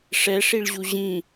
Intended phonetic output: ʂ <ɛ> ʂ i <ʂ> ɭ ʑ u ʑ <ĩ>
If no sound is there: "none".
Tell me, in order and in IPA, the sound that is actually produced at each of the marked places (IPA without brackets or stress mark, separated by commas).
ɛ, none, ĩ